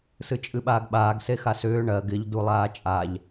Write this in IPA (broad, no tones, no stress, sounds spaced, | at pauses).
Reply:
s ɨ t͡ʃʼ ɨ ɓ aː ɡ ɓ aː ɡ s e x a s ʏː ɳ ɜ ɡ ɪ ʎ d u lˠ aː t͡ʃʼ a ʎ